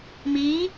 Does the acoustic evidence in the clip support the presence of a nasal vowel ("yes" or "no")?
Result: no